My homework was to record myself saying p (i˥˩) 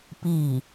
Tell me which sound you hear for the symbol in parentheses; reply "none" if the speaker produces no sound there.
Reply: i˥˩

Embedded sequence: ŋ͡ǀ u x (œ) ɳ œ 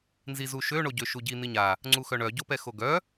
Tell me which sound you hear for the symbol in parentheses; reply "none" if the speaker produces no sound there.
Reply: œ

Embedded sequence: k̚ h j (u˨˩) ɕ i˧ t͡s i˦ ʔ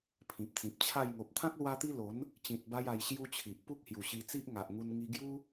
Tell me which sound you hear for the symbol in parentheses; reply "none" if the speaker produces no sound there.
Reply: u˨˩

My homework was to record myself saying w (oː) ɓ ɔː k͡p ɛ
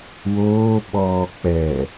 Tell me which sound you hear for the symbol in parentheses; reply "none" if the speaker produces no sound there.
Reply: oː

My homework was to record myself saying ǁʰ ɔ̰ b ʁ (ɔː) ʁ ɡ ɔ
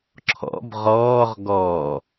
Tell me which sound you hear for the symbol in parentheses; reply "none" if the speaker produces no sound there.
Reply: ɔː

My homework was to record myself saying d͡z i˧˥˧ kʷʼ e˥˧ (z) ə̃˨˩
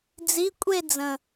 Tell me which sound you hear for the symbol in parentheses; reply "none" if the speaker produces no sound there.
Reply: d͡z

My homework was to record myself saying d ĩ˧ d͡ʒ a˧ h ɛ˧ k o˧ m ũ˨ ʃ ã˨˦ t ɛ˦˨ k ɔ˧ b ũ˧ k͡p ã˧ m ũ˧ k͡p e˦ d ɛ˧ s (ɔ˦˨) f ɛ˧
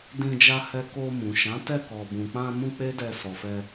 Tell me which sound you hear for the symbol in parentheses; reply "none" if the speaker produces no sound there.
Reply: ɔ˨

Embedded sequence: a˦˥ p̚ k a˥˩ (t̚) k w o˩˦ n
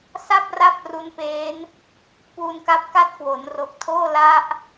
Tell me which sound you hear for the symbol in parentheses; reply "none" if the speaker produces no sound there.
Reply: t̚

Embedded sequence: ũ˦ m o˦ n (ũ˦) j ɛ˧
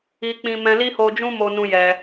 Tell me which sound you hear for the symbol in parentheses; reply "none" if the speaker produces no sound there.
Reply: ũ˦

